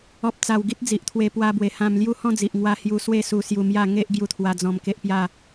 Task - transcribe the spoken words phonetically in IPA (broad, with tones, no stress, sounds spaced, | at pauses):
ɔ˨ p̚ t͡s a˨˩ w ɡ i˦ t̚ d͡z i˨ ʔ t̪ʰ w e˧ p w a˧ b w e˨˩ h ã˧ m l j u˦ h ɔ̃˥˧ d͡z i˨ ʔ ŋ w a˧ h j u˧ s w e˥˧ s u˧ s j u˧ m j a˥˧ ŋ e˦ ʔ ɡ j u˧ t̪ʰ w a˧ d͡z ɔ̃˧ m k e˦ ʔ p j a˥˧